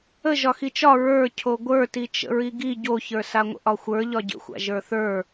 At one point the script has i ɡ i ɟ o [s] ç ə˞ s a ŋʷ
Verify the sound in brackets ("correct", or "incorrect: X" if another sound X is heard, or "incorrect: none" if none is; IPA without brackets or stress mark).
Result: incorrect: none